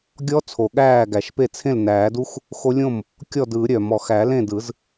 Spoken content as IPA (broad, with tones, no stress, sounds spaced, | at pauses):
ɡʲ ɔ˦˥ t͡sʰ o˨˩ ɠ æː˥˩ ɡ æ˨˩˦ ʃ p e˥˩ t͡sʰ ẽ˥˩ l n æː˨˩˦ d u˦˥ x | x o˦˥ lʲ õ˥˩ m | kʲ ɔ˥˩ d ɯ˨˩˦ ɾʲ œ˨˩ m ɔ˨˩ x æ˨˩˦ l ẽ˥˩ d ɯ˨˩˦ z